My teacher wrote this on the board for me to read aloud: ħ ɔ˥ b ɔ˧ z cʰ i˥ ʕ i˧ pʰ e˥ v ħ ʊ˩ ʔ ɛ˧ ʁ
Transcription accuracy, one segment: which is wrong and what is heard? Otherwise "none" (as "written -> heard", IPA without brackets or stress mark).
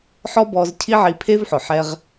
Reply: ʔ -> ħ